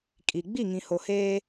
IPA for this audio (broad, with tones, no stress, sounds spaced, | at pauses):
kʼ i˨ ɡ͡b i˦˨ ŋ ĩ˨ h o˨ h eː˦